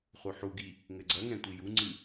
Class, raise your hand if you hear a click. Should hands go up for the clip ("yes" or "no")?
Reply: yes